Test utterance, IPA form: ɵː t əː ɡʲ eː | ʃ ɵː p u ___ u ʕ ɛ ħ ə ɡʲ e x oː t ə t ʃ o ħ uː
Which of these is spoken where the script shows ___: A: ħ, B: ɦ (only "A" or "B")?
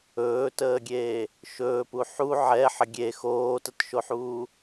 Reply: A